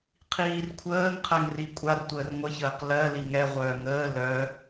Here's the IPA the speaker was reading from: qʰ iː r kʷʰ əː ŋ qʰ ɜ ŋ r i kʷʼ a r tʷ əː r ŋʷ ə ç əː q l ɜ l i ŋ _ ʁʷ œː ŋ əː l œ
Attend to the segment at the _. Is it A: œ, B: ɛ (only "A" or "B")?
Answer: B